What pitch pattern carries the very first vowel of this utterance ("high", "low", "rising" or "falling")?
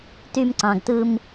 high